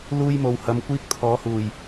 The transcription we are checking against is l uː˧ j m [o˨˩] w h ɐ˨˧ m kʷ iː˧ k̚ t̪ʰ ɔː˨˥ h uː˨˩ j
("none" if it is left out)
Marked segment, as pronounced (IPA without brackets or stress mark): o˨